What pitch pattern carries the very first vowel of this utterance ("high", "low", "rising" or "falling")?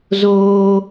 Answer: high